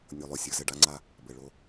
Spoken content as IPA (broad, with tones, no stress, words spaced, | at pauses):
nʲo˨lˠo˨ sʲə˞˨zɘ˦˨ ɖa˦ŋ͡ǀa˦ | bɘ˨ ɭo˦